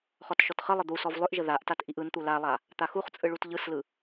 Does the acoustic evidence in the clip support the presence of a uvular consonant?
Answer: yes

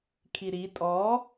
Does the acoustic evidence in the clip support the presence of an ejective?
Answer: yes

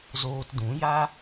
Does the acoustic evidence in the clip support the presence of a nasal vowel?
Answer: yes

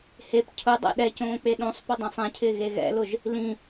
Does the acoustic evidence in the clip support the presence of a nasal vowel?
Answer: yes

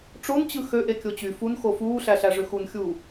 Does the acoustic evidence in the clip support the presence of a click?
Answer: no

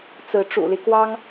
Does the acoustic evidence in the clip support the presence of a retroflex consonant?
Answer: yes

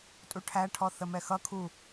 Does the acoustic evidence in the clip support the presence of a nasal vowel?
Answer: no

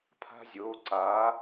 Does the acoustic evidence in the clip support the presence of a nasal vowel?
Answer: no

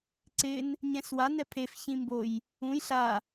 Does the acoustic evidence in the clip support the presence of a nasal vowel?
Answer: yes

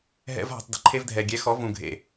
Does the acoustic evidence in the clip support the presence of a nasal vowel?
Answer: yes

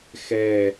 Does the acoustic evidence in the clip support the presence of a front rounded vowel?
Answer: no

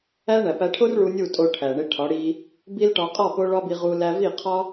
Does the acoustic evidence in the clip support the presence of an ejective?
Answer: yes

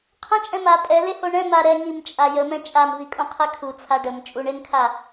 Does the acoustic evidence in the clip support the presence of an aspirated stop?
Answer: yes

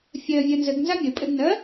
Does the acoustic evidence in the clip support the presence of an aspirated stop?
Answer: no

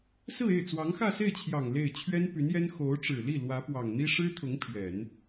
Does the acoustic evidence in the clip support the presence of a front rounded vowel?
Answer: yes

